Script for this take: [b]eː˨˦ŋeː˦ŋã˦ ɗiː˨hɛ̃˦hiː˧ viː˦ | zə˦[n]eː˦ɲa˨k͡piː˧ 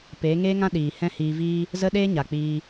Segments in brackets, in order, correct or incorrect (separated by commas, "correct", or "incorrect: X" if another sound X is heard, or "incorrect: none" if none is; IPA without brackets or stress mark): incorrect: p, incorrect: ɗ